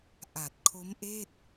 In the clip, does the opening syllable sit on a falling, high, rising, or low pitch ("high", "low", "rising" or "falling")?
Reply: low